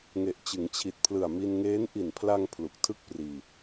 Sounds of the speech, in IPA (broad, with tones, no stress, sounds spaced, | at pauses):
ŋ e˨˩ ʔ t͡ɕ ɯ˩˦ ŋ t͡ɕʰ i˨˩ t̚ pʰ l ɯ˨˩ a̯ m i˧ n ŋ eː˦˥ n ʔ i˨˩ n pʰ l a˧ ŋ pʰ l u˨˩ k̚ tʰ ɯ˥˩ k̚ p r iː˧